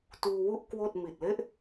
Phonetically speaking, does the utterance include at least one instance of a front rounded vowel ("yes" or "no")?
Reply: no